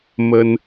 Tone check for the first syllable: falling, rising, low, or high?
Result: high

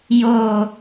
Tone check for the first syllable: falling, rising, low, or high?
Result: low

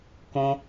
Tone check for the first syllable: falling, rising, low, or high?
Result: high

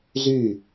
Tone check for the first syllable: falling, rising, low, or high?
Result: falling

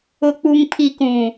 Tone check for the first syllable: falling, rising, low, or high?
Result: low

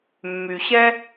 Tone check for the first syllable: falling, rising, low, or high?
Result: low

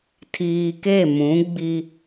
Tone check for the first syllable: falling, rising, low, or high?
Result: low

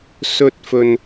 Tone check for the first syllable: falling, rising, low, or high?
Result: high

